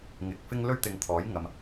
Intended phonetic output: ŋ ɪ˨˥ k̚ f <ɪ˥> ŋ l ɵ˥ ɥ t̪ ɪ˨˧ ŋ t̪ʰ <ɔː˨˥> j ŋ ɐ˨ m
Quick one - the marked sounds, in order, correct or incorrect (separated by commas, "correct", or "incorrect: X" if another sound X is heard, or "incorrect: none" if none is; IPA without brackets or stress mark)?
correct, correct